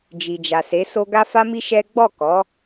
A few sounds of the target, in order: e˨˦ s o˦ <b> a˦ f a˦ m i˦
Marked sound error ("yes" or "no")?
yes